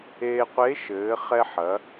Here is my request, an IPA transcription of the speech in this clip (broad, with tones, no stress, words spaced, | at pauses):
eː˧qʷe˧˥ʃɘː˩˧ χɛ˧ħɐ˩˧